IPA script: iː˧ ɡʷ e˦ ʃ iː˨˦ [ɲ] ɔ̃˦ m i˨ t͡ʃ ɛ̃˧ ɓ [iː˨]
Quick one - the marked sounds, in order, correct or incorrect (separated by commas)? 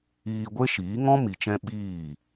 incorrect, incorrect